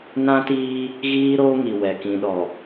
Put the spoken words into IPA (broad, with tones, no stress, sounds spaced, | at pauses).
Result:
n ã˦ t iː˦ | ɣ iː˦ ɾ oː˦ ŋ i˨ w ɛ˨ k ĩ˨ ɗ ɔ˨